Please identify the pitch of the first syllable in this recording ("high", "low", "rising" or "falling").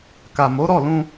low